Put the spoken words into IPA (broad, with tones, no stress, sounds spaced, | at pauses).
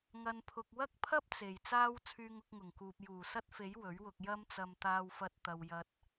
ŋ ɐ˨ n pʰ ʊ˨ k̚ w ɐ˥ k̚ pʰ ɐ˥ p̚ t͡s e˨˩ j t͡s aː˥ w t͡sʰ yː˧ ŋ ʊ˧ k̚ ŋ ʊ˨˩ ŋ k uː˨ p̚ j uː˨˩ s ɐ˥ t̚ f e˨˥ j w ɵ˨˥ ɥ w ʊ˧ k̚ j ɐ˥ m t͡s ɐ˧ m t̪ aː˧ w f ɐ˧ t̚ t̪ ɐ˧ w j ɐ˧ t̚